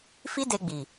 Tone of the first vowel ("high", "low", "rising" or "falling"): high